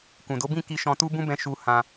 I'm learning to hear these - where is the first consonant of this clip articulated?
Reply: velum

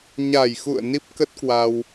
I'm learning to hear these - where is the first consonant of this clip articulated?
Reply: palate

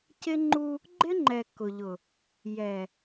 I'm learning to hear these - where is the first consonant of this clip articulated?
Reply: palate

